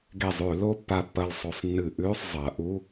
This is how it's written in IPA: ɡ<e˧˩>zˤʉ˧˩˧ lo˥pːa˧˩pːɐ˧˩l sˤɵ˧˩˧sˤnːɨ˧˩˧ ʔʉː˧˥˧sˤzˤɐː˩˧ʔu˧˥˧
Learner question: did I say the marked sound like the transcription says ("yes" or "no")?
yes